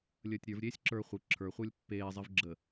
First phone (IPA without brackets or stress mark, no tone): lʲ